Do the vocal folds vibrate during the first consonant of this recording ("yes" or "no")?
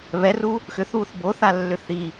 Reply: yes